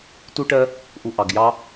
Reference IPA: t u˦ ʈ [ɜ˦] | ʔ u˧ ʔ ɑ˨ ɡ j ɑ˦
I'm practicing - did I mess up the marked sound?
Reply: no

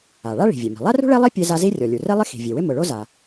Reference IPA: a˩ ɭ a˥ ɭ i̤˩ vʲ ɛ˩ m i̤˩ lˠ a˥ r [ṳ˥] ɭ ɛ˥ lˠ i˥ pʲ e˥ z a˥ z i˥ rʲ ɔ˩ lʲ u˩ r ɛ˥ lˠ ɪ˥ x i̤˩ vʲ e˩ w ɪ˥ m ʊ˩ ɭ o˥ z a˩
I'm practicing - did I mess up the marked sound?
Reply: no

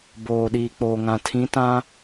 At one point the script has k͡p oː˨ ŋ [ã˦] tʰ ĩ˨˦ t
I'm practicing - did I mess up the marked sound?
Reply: yes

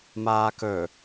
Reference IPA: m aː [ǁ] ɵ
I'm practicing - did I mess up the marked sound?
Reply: yes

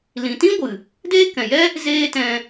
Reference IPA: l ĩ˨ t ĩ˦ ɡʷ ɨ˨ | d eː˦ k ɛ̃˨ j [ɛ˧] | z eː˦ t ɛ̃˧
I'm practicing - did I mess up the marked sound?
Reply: yes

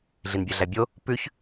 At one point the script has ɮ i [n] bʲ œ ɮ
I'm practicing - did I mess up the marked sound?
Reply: no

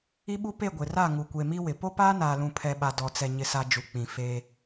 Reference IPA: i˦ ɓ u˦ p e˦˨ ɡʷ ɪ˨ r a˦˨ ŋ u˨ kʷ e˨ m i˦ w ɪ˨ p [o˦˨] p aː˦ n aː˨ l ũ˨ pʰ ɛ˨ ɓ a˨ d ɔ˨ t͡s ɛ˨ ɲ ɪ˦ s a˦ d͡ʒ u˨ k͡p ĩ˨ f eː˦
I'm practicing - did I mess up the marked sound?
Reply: yes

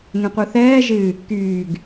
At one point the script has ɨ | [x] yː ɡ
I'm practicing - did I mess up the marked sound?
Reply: yes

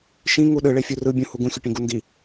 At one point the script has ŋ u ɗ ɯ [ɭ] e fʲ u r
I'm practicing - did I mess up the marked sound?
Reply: no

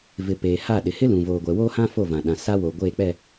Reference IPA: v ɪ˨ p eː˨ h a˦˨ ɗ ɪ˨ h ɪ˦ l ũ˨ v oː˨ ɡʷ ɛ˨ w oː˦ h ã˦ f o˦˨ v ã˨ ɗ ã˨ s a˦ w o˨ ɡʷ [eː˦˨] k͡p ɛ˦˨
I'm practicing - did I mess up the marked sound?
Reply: no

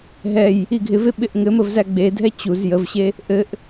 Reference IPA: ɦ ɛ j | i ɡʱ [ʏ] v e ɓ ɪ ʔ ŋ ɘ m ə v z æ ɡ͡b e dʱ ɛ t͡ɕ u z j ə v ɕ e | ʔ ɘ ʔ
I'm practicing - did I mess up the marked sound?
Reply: yes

